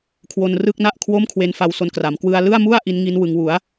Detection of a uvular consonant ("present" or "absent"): absent